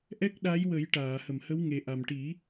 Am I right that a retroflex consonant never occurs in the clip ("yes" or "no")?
no